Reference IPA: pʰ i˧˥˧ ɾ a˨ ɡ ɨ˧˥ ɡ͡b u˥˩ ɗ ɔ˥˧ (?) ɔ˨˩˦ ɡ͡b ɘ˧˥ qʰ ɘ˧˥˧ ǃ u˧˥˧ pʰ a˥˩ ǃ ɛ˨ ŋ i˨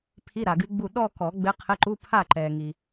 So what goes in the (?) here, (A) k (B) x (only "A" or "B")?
A